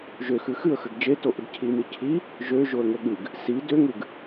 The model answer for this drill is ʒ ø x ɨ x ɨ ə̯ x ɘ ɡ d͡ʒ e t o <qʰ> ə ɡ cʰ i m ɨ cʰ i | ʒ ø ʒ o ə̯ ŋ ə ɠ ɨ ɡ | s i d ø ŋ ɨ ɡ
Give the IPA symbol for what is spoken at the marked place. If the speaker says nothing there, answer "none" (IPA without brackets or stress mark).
ʔ